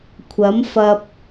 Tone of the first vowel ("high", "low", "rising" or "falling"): rising